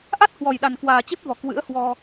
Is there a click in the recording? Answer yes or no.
no